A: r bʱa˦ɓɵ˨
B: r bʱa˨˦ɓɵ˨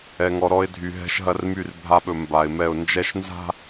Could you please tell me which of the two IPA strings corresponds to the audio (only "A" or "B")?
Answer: A